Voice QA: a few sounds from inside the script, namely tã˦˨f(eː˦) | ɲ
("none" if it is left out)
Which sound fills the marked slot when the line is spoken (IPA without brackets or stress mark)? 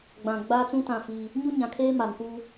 iː˦